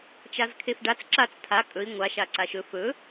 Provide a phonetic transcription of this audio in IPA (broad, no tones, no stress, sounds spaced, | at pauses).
t͡ʃ a z kʰ e f ɖ a t͡s ǁ a t͡s tʰ a kʼ ɵ i̯ ŋʷ a ʃ a ǀ a ʃ ɵ f ɵ